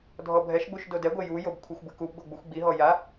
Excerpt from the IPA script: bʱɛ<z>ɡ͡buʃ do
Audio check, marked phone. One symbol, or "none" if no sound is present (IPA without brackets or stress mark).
ʃ